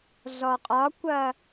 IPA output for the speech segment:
zɔqʼɒkʷɐ

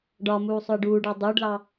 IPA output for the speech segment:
ɖɒmuː sˤʊɪ̯ɖuːɖɑ dˤuːɖlɑ

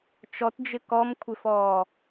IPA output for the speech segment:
t͡ʃɔtd͡ʒɪ kɔmkʷʰɪfɔː

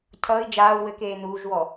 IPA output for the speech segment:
cʰʌːi̯ d͡ʒaːu̯ wɘkeː nuːʒwɔ

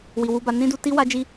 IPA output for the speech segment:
wi˨wu˧ba˧ nĩ˦du˧ ti˦ wa˦d͡ʒi˦

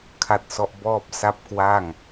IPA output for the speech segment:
kʰa˦˥t̚sɔ˦˥ʔ bɔː˥˩p̚ sa˥˩p̚kwa˥˩ŋ

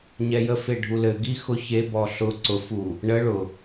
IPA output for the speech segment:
ɲɛjəfe ɖʱulɘɡi xʊ çebɔ ɬʊ ǀʊfu | ɳə ɭʊ

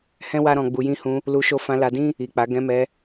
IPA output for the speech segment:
hɛ̃˦ wa˦ɾɔ̃˧ɡ͡bu˧ jĩ˧hũ˧ | lu˧ʃo˧ fã˧la˧dĩ˦ | i˨k͡pa˨˦ ɡɛ̃˧mɛ˧

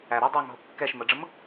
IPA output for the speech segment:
æ ɾɛ dˤæŋɦʊ kːɛʃ məɖ͡ʐəm

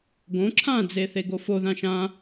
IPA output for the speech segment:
ɡõ ǁʰãd͡ze θeɡofoðã ʃã

